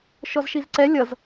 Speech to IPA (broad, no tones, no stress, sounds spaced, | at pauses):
ʃ ɔ z ʃ i z ǀ ɛ lʲ ʌ z